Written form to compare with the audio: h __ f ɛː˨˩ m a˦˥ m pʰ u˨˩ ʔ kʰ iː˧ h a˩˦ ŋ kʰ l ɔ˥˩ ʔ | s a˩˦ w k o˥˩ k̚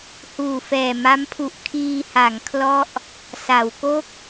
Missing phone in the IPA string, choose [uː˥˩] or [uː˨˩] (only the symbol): uː˨˩